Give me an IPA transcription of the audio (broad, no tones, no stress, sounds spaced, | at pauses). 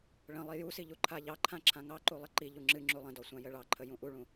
ɭ ə̃ lˠ i j u s i ʎ u ǃʰ a ʎ ɑ ǃʰ ã ǁʰ ã ŋ ɑ ǃ u lˠ ə ǃ i ʎ u ŋ͡ǁ ɨ ŋ͡ǁ u lˠ ə̃ d ɔ sʷ ã j ə ɭ ɑ ǃʰ ə j ũ ʔ u ɭ ũ